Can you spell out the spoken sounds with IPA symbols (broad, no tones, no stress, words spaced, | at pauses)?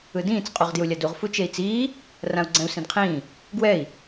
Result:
ɯdĩːt͡s qʼuʁdjulʲaduʁ fut͡ʃei̯t͡siː | rãu̯ɡ͡ǀɛ̃u̯sĩdqʰĩː | ɡwɛi̯